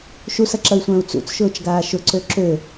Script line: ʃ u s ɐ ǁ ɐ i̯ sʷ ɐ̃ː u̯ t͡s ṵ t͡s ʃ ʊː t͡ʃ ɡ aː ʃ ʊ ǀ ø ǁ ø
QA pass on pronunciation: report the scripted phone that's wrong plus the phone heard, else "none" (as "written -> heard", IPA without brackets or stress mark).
none